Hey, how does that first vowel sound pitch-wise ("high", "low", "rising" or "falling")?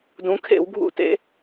rising